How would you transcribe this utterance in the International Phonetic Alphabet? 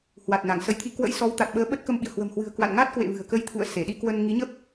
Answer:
h w a˨˩ t̚ n a˧˩ ŋ s ə˨˦ j t̪ʰ i˧ k w ə̰˧˥ j s ɔ˨˦ w t̪ a˨˩ t̚ ɓ əː˨˦ ɓ ə˦˥ t̚ k ə˧ m ɓ ḭ˧˨ ə̯ h w ə̤˨˩ m h w ɨ̤˨˩ ə̯ k w a̰˧˨ n ŋ a˦˥ t̚ k w ḛ˧˨ v ɨ̤˨˩ ə̯ k ə˧ j t̪ʰ ṵ˧˨ ə̯ s e˧˩ ɗ i˧ k w ə˧ n ŋ i˨˦ ɲ ə˦˥ p̚

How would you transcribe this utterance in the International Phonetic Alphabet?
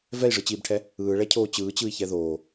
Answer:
v ɛ i̯ ʐ ɯ t͡ɕ iː b ʈʰ ɛ | ɯː ɭ ɛ cʰ oː t͡ɕ ɯː t͡ɕ ɯ i̯ ç ɛ ð oː

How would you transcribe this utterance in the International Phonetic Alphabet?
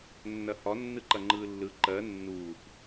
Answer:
nː ɐ h ɒ nː ɯ ǃ ɐ ŋ͡ǃ ɯː lː ɯ ǃ ɜ nː uː p

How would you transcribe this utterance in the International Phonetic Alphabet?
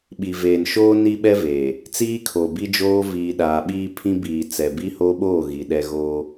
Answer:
ɓ i˨ v eː˨ n ʃ oː˦ n i˦ ɓ ɛ˦ v eː˨ | t͡s iː˦ kʰ o˨ b i˦ d͡ʒ oː˦ v iː˨ ɗ aː˨ ɓ iː˦ pʰ ĩ˦ b iː˨ t͡s ɛ˨ b i˦ h o˦ ɓ oː˦˨ ɣ i˨ ɗ ɛ˦ ɣ oː˦

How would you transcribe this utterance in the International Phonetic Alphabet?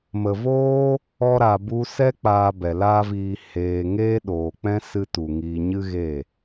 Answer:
m ə˨ v oː˦ | ɔ˧ ɾ a˨ b u˧ s ɛ˦ k͡p aː˧ b ɛ˨ l aː˦ v iː˧ h eː˧ ŋ eː˦ ɗ oː˨ k͡p ɛ̃˦ s ɨ˦ t u˨ ŋ iː˧ ɲ ɨ˦ ɣ e˦˨

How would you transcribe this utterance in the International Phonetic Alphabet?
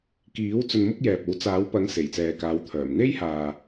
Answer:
k iː˨˥ w t͡s ɵ˧ n m ʊ˥ k̚ j ɛː˨ p̚ o˨˥ w t͡s aː˨˥ w p ɐ˨˥ ŋ s e˨˩ j t͡s ɛː˨ k aː˨˧ w t̪ʰ œː˨˩ m n̪ e˥ j h aː˨

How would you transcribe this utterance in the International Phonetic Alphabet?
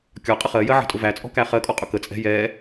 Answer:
kʲ ɒ qʼ ə χ ɜ j ɜ ʕ ə̤ tʼ ʊ v æ t͡sʼ ɔ̤ k æ χ ɜ kʼ ɔ qʼ ʊ k ə t͡sʼ ɛ̤ j ɛ

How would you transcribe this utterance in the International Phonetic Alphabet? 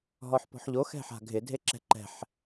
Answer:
ɦ ɔ ħ p ɔ̤ ħ ʎ o x ɛ̤ ħ a̤ ɡʱ ɪ dʱ e ǁ ɛ̤ ǃ ɛ̤ ħ

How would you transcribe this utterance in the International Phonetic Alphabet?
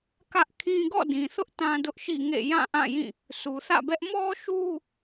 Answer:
k ä˦ ʔ kʰ ĩ˦ ɡ ɔ̰˦˨ d ĩ˨ θ ʊ˦ ʔ t ã˦ d ʊ˦ ʔ ʃ ḭ˦˨ ŋ ḛ˦˨ j ã˦˨ ʔ ã˦˨ j ĩ˦˨ | sʰ u˨ θ ä̰˦˨ b ɛ˦ ʔ m ɔ˦ ʃ u˦

